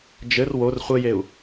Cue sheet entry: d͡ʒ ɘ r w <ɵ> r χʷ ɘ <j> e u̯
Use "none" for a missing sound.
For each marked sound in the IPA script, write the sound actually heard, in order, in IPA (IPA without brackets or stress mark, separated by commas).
o, j